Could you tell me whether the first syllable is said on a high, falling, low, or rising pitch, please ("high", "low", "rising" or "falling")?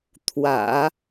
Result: low